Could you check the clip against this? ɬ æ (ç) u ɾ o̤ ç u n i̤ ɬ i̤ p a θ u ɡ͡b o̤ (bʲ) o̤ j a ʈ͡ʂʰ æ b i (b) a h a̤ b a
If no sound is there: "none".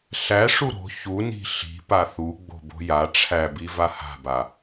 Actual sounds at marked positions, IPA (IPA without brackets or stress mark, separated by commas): ʂ, b, v